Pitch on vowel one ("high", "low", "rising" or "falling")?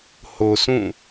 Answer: low